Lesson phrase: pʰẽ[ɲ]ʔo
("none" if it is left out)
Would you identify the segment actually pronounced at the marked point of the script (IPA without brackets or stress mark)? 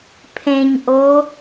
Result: ɲ